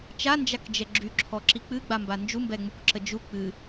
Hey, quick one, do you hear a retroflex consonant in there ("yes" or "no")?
no